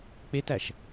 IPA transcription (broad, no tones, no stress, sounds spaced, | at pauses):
k͡p e t æ ʃ